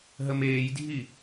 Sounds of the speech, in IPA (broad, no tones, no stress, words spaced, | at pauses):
ɦəmeːjdʱi